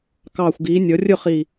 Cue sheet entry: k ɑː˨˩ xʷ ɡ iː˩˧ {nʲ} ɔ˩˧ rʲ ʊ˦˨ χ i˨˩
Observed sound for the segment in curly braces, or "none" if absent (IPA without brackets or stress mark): nʲ